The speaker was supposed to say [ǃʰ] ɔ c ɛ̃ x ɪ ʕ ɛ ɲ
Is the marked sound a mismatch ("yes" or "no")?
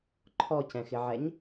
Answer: no